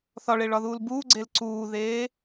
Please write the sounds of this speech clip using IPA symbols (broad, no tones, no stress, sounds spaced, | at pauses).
θ ɒ ɭ eː ɭ ɒ ð uː l b uː ɡ͡ǀ e l ǀ uː ð eː